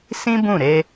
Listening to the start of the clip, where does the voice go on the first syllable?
high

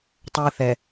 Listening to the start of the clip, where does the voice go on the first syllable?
high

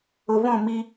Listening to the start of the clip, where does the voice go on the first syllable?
low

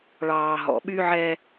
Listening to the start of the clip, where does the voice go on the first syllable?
low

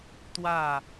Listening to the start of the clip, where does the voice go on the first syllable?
falling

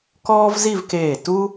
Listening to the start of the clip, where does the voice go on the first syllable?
high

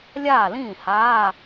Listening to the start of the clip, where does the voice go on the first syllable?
falling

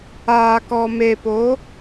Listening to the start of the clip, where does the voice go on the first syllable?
low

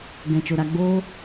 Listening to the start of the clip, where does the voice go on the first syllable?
low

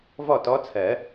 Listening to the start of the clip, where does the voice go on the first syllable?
falling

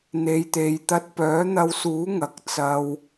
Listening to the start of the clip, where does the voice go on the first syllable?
low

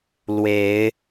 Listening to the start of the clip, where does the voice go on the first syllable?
rising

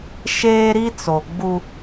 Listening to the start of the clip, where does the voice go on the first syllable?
high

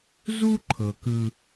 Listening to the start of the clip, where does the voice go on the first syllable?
high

